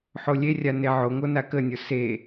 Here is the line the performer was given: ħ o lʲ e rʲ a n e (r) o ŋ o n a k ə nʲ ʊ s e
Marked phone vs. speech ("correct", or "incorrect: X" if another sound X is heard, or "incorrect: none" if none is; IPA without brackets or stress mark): incorrect: ʕ